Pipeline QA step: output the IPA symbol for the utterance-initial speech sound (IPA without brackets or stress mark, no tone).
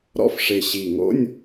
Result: ɾ